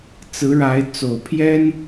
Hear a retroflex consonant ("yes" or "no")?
yes